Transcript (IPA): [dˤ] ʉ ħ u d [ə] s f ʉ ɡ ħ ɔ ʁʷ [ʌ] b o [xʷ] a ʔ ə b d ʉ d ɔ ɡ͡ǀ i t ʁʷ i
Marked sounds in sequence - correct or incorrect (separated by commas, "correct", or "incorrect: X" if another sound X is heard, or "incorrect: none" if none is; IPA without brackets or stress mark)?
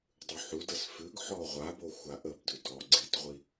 correct, correct, incorrect: a, correct